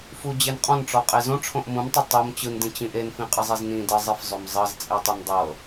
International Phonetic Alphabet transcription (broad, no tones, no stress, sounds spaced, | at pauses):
f u d͡ʑ e n qʼ ɔ̃ n ʈ͡ʂ ɔ qʼ e z õ ʈ͡ʂʰ õ ʔ m ũ m tˤ ø tˤ u m t͡ɕ ɯ n d ĩ t͡ɕ ĩ ʔ e n f ĩ qʼ ɯ zˤ i z n ĩ d ɜ zˤ i f zˤ ø m zˤ ɤ z t͡sʼ e tˤ ɯ n dˤ ɤ